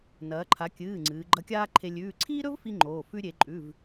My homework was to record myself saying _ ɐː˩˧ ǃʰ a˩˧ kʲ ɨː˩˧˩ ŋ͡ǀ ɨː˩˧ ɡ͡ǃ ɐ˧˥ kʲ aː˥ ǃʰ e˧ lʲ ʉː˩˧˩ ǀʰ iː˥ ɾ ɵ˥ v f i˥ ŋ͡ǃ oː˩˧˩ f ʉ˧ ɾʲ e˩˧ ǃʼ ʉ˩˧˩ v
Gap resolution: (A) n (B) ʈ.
A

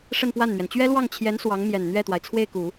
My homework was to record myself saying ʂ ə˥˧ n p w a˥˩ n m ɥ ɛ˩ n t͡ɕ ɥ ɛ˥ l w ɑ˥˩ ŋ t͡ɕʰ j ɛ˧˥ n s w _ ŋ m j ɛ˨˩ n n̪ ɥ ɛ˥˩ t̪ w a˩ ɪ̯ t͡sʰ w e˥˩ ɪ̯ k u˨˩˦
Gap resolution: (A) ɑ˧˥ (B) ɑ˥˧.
A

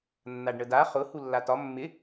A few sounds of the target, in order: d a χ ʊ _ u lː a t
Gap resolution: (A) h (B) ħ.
A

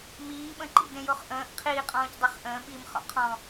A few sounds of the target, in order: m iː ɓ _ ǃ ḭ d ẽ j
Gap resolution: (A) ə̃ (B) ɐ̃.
A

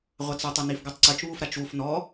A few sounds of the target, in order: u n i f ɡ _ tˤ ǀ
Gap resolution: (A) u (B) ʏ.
A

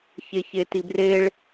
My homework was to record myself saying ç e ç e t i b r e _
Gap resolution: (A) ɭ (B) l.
A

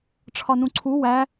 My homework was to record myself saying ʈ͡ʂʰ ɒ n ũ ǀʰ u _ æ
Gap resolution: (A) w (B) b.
A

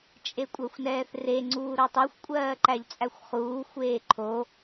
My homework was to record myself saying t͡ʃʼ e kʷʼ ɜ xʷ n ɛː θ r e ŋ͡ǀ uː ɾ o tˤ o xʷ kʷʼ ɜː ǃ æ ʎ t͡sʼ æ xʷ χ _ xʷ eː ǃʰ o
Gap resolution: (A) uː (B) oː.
A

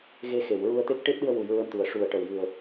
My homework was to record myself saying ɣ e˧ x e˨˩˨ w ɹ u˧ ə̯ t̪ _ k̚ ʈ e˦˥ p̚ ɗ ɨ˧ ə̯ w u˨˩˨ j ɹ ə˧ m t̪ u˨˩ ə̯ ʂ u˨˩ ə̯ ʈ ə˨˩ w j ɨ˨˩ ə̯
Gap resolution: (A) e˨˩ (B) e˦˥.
B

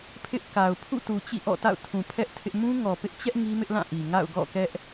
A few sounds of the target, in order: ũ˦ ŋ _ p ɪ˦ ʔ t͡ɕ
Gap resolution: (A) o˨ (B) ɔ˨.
B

